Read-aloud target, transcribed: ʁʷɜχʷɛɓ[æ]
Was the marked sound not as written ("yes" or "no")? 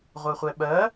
yes